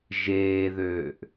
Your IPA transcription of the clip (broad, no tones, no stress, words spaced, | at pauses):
ʒeːðøːʔ